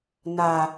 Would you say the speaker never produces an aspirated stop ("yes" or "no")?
yes